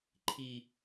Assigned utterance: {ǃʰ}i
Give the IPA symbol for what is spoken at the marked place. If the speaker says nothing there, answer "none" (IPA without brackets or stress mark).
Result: ǃʰ